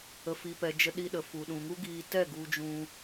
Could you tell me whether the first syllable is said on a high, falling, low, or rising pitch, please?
low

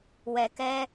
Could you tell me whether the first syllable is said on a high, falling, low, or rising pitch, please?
low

